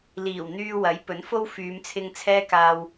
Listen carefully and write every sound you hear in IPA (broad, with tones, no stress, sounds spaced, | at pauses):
l iː˨˩ w n̪ yː˧ w ɐ˨˥ j p ɵ˨˥ n f o˥ w f yː˨˧ m t͡sʰ ɪ˧ ŋ t͡sʰ ɛː˥ k aː˧ w